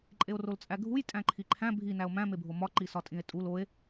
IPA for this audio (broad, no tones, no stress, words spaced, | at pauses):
ǃʼeo̯rolt͡sʼæɡʱuj tʼæ̃ǃʰiǃʰæ̃ bʱinæo̯ mæ̃mebʱo mɒǃisɒ tʼĩe̯tʼul oe̯